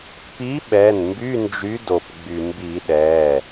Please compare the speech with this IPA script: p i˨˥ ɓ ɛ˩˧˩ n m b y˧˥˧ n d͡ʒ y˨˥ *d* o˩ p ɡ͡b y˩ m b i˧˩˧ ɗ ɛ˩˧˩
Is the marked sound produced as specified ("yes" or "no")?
yes